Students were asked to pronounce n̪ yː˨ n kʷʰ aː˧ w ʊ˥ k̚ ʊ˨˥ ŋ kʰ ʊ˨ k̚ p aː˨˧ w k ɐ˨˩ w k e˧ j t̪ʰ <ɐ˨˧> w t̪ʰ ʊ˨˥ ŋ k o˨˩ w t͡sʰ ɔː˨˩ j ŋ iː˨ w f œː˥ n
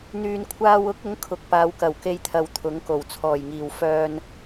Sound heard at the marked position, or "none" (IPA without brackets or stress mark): ɐ˨